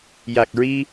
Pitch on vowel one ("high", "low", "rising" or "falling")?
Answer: low